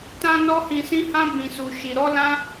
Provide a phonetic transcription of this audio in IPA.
t ã˧ n ɔ˦ h ĩ˧ s ĩ˦ h ã˦ b ĩ˧ s u˧ ʃ i˧ ɾ ɔ˦ l ã˦

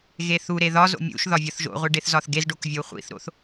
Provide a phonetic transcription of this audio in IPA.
ɣ e θ u ɾ e ð ɒ z o̰ mʲ ṵ ʃ ð ɒ vʲ ɒ θ ʒ o̰ ʁʷ i ɖ e θ z ɒ θ ɡ e z ɖ o k vʲ o χʷ ḭ θ ɾ o̰ θ

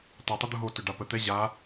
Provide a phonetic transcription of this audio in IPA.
tˤ ɛ tˤ u d̪ u ɦ o t ʏ ɖ a p ə t̪ ɛ ʑ a

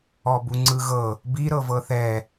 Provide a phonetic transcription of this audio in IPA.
ɔ b u ŋ͡ǀ ɯ ɣ ɤ | b i ɾ ɤ v ɤ θ ɛ

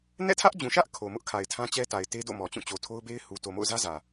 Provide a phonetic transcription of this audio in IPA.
n ɛ̰˦˨ tʰ ä˦ ʔ d͡ʑ ũ˨ ʃ ä˦ ʔ kʰ o˨ m ʊ˦ ʔ kʰ a˨ ɪ̯ tʰ ã˦ t͡ɕ ɛ˦ t a˨ ɪ̯ t e˦ d o̰˦˨ m ɔ˨ t͡ɕ ũ˦˨ t͡ɕ o˨ tʰ o˦ ʊ̯ b e˦ ɪ̯ h u˨ t o˨ m o̰˦˨ ʊ̯ z ä˦ z ä˨

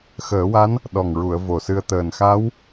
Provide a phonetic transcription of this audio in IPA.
x əː˨˩˦ w a˧˥ n | ɗ ɔ˨˩ ŋ ɹ u˨˩˨ ə̯ v o˨˩ s ɨ˧ ə̯ t̪ əː˨˩ n x a˧˥ w

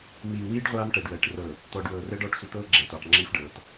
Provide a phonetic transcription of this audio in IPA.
m iː˨ w iː˦ ɖ ʁʷ aː˦ m ʈ ɛ˨ ɖ w ɛː˨ ʈ r ɤ˨ | t̪ ɔː˨ ɖ w ɤː˨ r ɛ˦ ɖ ɔː˦ ʈ sʷ ɛ˨ t̪ ɤː˦ ɡ͡ǁ ɛː˨ tʷ ɛː˨ q ŋ͡ǁ iː˦ f ɖ ɤː˨ t

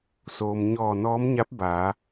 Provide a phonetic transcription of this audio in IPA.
s oː˩ m ɲ ɔː˧˩ n ɔː˧˥ m ɲ a˧˥ p̚ b aː˩˧

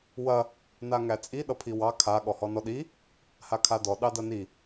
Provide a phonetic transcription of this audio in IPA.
w ɐ | n a ŋ æ t͡sʼ i ɗ ʌ pʰ i w ɑ kʰ a ɠ ɔ h ɔ n ɔ ɗ i | h a kʰ a d ɔ ɗ ɑ d ɐ n i

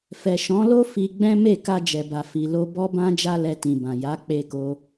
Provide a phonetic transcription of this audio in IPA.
f ɛ˨ ʃ ɔ̃˨˦ l o˦ f i˧ ɡ͡b ɛ̃˦ m e˦˨ k a˧ d͡ʒ ɛ˨ b a˨ f i˨ l o˧ b ɔ˧ b ã˧ d͡ʒ a˦ l ɛ˧ t ĩ˨ b ã˨ j a˨˦ k͡p e˧ k o˧

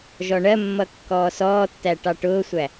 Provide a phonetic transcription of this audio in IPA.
ʒ ɔ ɳ ɜ mː ʌ kː ɔː s ɔː tː æ ʈ ɑ ʈ ʊː sʷ æ

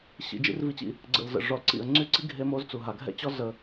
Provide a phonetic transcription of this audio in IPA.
ɕ ḭ˨ d͡ʒ ḭ˦ r v i˦ t͡ɕ ḭ˦ | ɡ͡ǀ ə̰˨ l z ə̰˨ ʐ ɔ˨ l ǀ ḭ˨ ə̯ ŋ͡ǀ y˦ ǀ i˦ ɡʱ e˦ m o˦ z t͡s u˨ ɦ a˨ ɡʱ ɛ̰˦ t͡ɕ ɔ˦ z ə˦

